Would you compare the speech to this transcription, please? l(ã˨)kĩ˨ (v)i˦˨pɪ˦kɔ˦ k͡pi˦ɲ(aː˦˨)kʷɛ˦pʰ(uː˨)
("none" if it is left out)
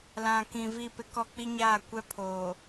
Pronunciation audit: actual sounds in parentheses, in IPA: ã˨, v, aː˦˨, oː˨

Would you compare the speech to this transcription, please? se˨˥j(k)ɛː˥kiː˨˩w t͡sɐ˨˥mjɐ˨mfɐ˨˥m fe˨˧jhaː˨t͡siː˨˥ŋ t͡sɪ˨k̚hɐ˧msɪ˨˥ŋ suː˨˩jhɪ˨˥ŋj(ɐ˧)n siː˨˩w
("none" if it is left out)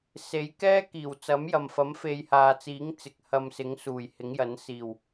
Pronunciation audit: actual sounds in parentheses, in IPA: k, ɐ˨˥

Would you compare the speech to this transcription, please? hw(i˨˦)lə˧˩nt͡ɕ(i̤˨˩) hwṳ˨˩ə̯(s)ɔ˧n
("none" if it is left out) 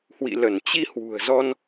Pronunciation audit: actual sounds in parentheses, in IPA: ḭ˧˨, i˧, z

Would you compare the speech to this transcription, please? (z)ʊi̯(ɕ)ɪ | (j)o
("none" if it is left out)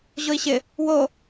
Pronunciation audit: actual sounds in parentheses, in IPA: ʑ, ɕ, w

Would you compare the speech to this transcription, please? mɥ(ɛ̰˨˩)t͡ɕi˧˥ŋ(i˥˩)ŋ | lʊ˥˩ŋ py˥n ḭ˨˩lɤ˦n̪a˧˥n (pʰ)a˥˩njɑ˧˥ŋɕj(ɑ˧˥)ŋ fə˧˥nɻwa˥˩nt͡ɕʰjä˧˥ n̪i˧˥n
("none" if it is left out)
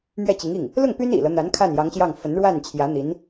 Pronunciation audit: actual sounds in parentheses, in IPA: ɛ˥˩, i˥˩, kʰ, ɑ˥˩

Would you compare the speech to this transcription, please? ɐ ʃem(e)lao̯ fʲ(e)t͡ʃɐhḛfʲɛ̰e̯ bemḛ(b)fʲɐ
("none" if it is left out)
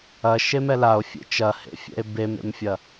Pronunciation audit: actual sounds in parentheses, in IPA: ɛ, ḛ, m

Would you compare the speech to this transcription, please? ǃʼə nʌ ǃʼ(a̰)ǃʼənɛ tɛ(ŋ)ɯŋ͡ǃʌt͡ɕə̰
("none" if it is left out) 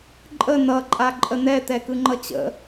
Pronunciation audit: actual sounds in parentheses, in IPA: a, k

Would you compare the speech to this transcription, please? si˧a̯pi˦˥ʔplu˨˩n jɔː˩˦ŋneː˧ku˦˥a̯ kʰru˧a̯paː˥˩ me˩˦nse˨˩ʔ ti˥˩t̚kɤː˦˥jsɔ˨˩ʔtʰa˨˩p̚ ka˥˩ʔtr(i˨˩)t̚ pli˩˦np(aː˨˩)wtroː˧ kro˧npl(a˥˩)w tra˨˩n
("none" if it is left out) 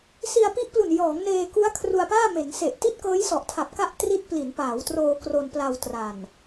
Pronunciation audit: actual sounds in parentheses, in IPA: i˦˥, aː˩˦, a˧

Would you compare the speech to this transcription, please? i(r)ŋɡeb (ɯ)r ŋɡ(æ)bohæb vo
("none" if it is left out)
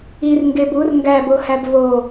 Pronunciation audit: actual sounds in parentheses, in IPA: r, u, æ

